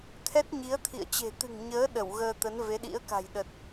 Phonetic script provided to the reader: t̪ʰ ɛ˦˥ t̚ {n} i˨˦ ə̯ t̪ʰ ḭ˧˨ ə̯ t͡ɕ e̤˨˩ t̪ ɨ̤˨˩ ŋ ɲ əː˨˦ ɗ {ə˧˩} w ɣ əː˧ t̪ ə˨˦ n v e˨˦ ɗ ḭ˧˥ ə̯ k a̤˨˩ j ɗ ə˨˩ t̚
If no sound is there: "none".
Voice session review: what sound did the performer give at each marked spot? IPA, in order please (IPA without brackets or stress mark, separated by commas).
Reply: ɲ, ə˧˩